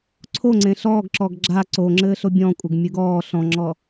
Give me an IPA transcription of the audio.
ǀʰ o ŋ͡ǀ ẽ ɬ ɔː ɡ ǁ ɔ ɡ ɡ͡ǁ a ǀ o ŋ͡ǁ ɘː ɬ o bʲ ɔ̃ kʷʼ ɘ ɡ mʲ ɨ ɡ ɔː ɬ ɔ̃ ŋ͡ǁ ɔ

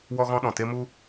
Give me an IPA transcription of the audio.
w ɔ˦ ɣ ɔ̃˦ ɗ ɔ̃˨ t e˦ m u˦

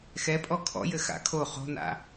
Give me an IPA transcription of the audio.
x ɛ pʼ ɔ kʰ ɔ̰ j ɘ x a̰ kʰ o χ o̤ n a̰

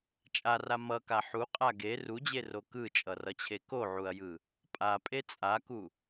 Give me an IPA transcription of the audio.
t͡ʃʼ a r a m ʌ k a ħ u qʼ a ɡ e r u d͡ʑ e r o k ɯ t͡ʃʼ ʌ r ʌ t͡ɕʰ e k o ʕ u ɐ̯ j ɯ | pʼ a pʼ e t͡sʼ a k u

